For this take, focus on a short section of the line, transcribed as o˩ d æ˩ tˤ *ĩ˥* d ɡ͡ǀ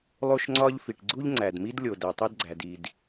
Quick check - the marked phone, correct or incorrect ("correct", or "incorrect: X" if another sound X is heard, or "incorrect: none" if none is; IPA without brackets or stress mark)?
incorrect: i˥